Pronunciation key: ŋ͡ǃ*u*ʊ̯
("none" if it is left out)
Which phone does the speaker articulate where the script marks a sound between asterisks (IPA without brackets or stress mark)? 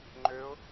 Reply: ø